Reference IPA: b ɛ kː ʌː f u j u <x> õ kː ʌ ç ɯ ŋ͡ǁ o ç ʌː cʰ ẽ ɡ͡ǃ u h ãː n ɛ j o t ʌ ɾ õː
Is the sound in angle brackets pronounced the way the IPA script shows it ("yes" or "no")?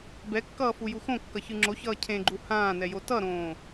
yes